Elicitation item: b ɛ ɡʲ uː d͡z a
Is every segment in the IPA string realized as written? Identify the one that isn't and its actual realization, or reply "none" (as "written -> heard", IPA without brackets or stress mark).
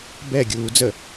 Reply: a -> ə